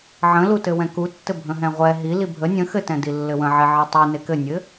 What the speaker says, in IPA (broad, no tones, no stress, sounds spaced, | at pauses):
ʕ ə̃ l u t ɘ w ɛ̃ k u tː ɘ bʱ ə̃ ɦ ɛ̃ ʁʷ ɛ ɦ i l i bʱ ə nʲ ə̃ x ɘ t ɛ̃ d i lː ɘ w ə̃ ʕ ɛ ʕ i tˤ i n e k ɘ nʲ ɘ